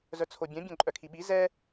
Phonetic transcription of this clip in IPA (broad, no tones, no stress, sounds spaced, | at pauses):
z œ t͡sʰ o bʲ œ̃ bʲ œ̃ ǃʼ œ kʰ i ɓ i z ɛ